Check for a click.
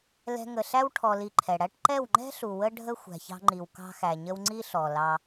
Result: present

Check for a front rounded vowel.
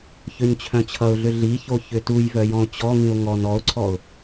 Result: present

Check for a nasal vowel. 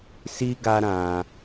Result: present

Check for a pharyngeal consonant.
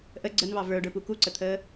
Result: absent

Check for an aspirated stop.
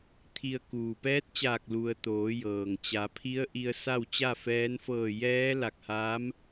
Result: present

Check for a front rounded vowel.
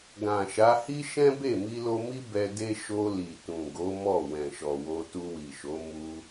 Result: absent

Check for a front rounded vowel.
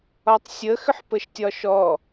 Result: present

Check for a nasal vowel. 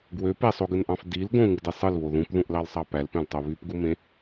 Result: present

